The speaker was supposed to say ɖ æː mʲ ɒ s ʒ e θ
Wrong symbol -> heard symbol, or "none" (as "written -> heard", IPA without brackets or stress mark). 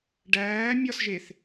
none